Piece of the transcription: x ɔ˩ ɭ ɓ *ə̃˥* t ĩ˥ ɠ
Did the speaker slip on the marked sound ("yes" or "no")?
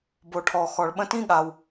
no